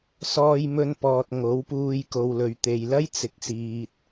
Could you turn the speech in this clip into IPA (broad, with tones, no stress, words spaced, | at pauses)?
sɔː˧jmɵ˧npɔː˨t̚ ŋo˨˥wpuː˧j ko˨wlɵ˨ɥt̪e˨j lɐ˥jt͡sɪ˨˥k̚siː˨t̚